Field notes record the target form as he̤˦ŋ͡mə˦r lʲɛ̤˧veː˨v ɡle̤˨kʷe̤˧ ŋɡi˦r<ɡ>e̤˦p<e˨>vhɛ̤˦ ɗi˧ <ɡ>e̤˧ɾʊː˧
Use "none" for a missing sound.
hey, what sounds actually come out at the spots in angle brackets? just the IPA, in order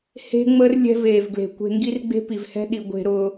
ɡ͡b, i˨, ɡʷ

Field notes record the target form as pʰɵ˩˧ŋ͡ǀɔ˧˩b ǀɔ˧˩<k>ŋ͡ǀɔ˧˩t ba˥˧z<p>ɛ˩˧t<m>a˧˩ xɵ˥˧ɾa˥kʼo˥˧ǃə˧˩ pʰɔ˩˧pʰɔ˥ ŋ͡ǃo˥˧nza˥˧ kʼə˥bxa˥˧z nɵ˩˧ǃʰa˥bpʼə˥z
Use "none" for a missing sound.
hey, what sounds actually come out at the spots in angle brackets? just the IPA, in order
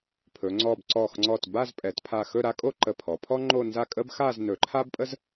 x, pʼ, pʰ

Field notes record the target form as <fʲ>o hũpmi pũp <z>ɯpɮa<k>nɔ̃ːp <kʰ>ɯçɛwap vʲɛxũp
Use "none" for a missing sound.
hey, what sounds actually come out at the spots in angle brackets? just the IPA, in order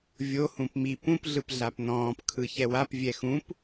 vʲ, ɮ, p, kʰ

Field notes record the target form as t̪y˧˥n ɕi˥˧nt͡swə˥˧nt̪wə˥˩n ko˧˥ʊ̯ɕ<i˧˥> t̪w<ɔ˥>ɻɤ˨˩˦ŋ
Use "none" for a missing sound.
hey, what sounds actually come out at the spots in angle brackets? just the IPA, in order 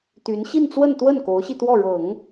i˧, ɔ˥˩

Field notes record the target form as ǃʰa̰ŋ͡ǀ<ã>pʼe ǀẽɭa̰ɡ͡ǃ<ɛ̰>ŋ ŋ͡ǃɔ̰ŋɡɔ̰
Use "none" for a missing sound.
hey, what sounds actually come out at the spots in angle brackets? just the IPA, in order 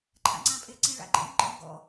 ã, ḛ

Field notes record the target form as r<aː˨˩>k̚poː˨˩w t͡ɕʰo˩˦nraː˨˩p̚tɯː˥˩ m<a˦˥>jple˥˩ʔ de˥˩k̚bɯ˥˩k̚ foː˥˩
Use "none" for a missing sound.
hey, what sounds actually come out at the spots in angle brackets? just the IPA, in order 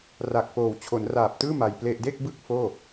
a˨˩, a˧

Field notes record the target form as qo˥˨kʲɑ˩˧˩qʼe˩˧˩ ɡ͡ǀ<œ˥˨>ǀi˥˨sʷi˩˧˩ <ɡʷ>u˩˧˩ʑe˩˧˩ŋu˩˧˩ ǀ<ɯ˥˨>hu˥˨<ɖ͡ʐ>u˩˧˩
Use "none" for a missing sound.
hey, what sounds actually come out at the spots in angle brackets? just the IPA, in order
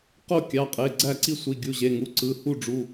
æ˥˨, ɡʲ, ɯ˩˧˩, ɖ͡ʐ

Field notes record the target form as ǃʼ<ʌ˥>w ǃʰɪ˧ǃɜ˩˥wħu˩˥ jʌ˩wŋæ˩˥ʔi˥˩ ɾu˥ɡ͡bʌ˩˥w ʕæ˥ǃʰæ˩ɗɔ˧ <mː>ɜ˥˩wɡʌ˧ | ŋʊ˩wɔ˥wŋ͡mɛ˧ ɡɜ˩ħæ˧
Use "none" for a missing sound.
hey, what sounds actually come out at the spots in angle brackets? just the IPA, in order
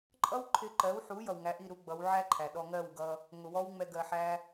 ʌ˥, ŋ

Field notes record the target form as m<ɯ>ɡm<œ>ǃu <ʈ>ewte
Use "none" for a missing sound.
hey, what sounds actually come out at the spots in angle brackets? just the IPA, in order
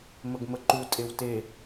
ə, ə, tʼ

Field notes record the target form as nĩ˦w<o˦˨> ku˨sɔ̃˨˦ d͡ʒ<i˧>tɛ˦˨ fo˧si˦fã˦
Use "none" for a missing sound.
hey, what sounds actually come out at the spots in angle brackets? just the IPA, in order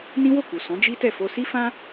o˦˨, i˦

